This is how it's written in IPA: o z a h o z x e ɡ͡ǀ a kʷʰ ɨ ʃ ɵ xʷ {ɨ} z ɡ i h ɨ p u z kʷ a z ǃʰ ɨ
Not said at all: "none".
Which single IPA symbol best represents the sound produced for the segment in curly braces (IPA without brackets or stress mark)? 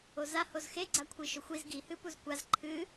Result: i